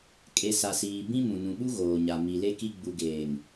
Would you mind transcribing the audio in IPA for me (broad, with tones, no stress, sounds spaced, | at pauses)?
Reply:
kʼ e˨ s a˨ s iː˨ b ĩ˦ m ũ˨ n ũ˨ ɓ u˦ ɣ oː˨ ɲ a˨ m i˨ l e˦ k i˦ ɡ͡b u˨ ɡ eː˨ ŋ